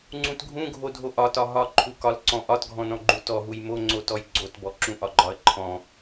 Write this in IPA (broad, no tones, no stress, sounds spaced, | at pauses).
ŋ͡ǀ ũ t ɡʱ ũ ɡʱ o dʱ o ʔ ɒ t ɒ ɦ ɒ ǃʰ u k ɒ l ǀ ɔ̃ ʔ ɒ t ɡʱ ɔ̃ n ɔ̃ ɡ͡ǃ u t ɔ ɦ u j m o ŋ͡ǀ o t ɔ j ɡ͡ǀ o t b ɔ ǁ ũ ʔ ɒ ɡ͡ǃ ɒ ə̯ ǃʰ ɔ̃